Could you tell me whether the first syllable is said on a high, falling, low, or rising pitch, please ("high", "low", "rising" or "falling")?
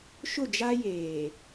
falling